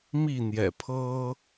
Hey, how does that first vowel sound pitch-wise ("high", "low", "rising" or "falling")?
falling